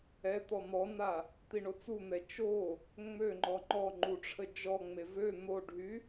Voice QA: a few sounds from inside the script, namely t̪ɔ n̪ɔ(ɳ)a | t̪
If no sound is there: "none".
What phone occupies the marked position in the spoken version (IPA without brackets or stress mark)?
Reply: n